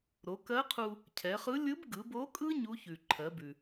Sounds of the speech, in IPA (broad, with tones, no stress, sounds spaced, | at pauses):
ɾ o˩˧ k ɜ˧˥ qʰ u˧ | cʰ ɛ˩˧ χ ɯ˧˥ lʲ ɯ˧˥ b ɡ ɯ˩˧ b o˧˥ kʼ ɯ˥ ɲ u˧˥ ç ʉ˩ ǃʰ ɜ˩˧ b ʉ˩